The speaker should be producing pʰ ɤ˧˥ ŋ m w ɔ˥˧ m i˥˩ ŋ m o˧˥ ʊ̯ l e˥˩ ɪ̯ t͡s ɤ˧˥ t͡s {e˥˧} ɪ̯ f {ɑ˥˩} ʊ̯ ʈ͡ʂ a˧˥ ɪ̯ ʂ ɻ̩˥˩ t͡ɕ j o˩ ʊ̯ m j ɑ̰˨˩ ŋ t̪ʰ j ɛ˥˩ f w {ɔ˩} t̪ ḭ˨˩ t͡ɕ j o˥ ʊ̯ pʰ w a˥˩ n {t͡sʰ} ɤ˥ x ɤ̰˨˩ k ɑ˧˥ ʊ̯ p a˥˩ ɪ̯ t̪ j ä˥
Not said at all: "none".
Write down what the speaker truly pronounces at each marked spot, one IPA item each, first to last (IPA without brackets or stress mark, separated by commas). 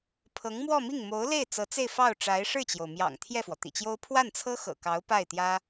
e˥˧, ɑ˥˩, ɔ˩, t͡sʰ